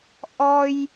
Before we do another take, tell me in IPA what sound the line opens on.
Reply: ʔ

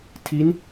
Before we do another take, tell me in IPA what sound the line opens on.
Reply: tʰ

